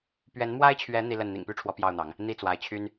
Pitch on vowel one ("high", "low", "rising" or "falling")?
rising